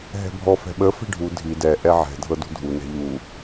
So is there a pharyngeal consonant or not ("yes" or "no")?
yes